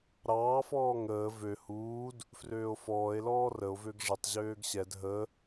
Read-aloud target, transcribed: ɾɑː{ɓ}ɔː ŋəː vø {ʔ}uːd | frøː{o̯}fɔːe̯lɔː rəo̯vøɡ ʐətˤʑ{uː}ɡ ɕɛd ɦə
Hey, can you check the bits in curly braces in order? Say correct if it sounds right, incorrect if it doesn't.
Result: incorrect: f, incorrect: h, correct, incorrect: øː

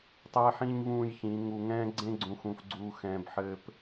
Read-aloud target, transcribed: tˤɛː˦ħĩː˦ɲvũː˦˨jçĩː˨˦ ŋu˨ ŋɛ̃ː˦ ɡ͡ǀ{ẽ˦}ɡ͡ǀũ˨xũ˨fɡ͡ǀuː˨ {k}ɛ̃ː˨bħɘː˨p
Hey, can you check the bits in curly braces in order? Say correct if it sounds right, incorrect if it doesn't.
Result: correct, incorrect: x

